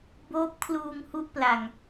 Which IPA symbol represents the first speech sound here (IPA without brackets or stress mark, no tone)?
b